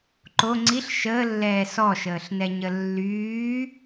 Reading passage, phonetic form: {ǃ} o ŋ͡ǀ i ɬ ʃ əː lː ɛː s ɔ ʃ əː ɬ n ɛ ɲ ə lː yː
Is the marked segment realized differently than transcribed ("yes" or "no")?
no